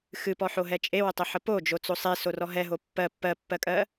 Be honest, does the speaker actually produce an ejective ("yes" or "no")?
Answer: yes